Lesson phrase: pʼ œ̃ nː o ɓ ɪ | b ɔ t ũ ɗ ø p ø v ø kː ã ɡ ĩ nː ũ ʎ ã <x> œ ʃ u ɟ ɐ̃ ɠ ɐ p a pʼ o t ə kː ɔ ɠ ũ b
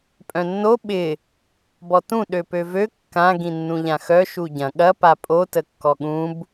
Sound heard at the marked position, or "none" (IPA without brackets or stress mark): x